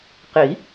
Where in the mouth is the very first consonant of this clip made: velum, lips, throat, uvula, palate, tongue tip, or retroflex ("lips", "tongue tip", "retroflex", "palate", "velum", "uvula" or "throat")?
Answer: uvula